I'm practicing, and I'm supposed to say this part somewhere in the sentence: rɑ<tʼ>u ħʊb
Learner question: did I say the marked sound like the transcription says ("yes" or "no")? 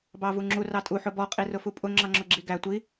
yes